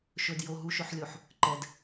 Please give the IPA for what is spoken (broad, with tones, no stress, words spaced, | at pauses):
ʃɵ˨djo˨ ɦu˨ʃɵ˨ħlʲo˨ħ | ǃɛ˨d